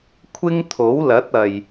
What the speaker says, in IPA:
kʷʰ ɪ˥ ŋ t̪ʰ o˨˥ w l ɐ˨˥ t̚ ɐ˨ j

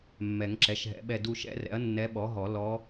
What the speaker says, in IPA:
mː ɛ˨˩˦ ŋ ǁ ɛ˩˥ ʃ ɦ ɛ̰˨˩˦ ɓ ɛ˦˨ d u˦˨ ʃ ɛ̰˧˥ r ɛ̰˩˥ ɐ̯ nː ɛ˧˥ ɓ ɔ˩˥ ɦ ɔ˨˩˦ l ɔ˧˥

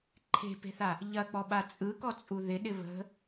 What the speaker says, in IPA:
ǃʰ e̤ p e̤ θ a | ʎ ɐ k͡p ɔ ɓ a t͡sʼ ɯ k ɔ t͡sʼ u ð ɪ ɗ ɪ β ə̤

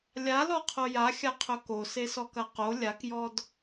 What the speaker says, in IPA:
lʲ a l ɔ qʰ o j a xʲ a qʰ ɵ k o s e s ɔ k ɐ q o lʲ a k j ɔ d

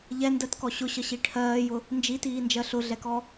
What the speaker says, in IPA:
ʎ ɛ n d ɜ t k ɔ ɕ ʊ ɕ ʌ ɕ i ʈʰ ɜː j ʊ | n d͡ʒ i t iː n d͡ʒ ɜ ɬ ʊ ɮ ɛ k ɔ

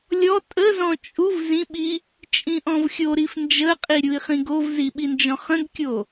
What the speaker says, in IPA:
lʲ ɔ tʼ ə z ɔ̃ t͡ʃʼ u v z ĩ ɓ i | t͡ʃʼ ĩ ʔ ɔ̃ v xʲ o ɾ i f n d͡ʒ ə qʼ i ɾʲ u i̯ χ ĩ ɡ o v z i ɓ i n d͡ʒ ɔ̃ χ ə̃ ɡ kʲ o

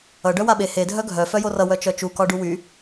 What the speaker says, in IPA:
ʌ ɖ œ w a ɓ e h e dʱ œ ɡʱ œ f œ j o r ʌ w œ t͡ʃ œ t͡ʃ u k ɒ ɖ u w y

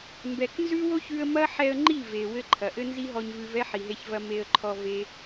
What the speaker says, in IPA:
m b ɛ˨ k n z ʉ˦ w o˦ ç ʉ˧ ə̯ m ɐ˦ ħ ɛ˧ ə̯ ŋ͡ǃ i˦˨ v e˨ w ɘ˦ ǃʰ ɐ˨ ʔ ɘ˦ n z i˦ ɦ ɔ˧ ɲ v ʉ˧ v ɛ˦ ħ i˨ ɦ e˧ ç v ɐ˧ m e˧ ə̯ ǃʰ ɔ˧ v e˦

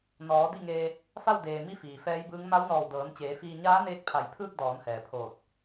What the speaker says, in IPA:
n ɔː˩˧ d i˥˨ ŋ eː˧ | f a˥˨ w d eː˩ m i˧˥ f iː˩ f ɛː˧˥ j b ɯː˧˥ ŋ m a˧˥ w n ɔː˧˩ w d ɤː˩˧ n t͡ɕ eː˩˧ f iː˧ ɲ aː˧˥ n eː˧ k̚ pʰ a˧˩ j pʰ ɯː˥˨ k̚ d ɔː˩˧ n h ɛː˩ pʰ oː˧˩ t̚

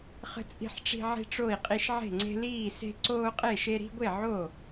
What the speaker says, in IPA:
χ ə̤˦ t͡sʼ i̤˦ ħ ʈ͡ʂ i̤˦ ʕ i̤˦ ʈ͡ʂ o˥˨ i̯ qʼ i˦ ʃ ʕ e̤˥˨ ŋ͡ǀ e̤˦ l iː˥˨ s e̤˦ ǀ oː˦ qʼ e˥˨ ʃ e˦ ɾ i̤˦ ɡʷ e˥˨ ʕ o˥˨

